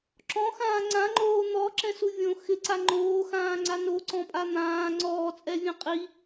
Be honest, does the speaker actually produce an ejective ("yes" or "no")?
yes